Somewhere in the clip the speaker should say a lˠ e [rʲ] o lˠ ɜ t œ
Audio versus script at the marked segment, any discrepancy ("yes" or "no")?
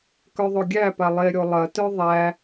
yes